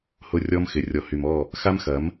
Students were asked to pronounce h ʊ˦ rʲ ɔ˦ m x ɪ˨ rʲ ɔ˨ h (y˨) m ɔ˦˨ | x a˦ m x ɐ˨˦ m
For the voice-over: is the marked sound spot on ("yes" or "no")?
yes